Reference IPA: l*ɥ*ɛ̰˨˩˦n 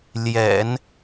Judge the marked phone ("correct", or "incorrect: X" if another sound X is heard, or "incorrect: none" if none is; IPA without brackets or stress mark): incorrect: j